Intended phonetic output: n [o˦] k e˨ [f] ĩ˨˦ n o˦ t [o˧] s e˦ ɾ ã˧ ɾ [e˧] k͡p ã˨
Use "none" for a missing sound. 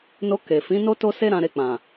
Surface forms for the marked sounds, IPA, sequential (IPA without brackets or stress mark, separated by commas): o˧, f, o˦, e˧